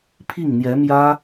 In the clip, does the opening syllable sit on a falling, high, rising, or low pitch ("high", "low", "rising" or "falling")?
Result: falling